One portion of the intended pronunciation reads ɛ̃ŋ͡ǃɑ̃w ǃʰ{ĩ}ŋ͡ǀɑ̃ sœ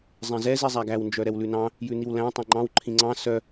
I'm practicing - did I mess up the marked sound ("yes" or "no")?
no